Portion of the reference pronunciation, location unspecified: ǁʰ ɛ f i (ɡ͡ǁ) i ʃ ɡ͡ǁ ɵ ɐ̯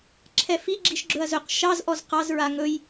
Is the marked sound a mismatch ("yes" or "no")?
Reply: no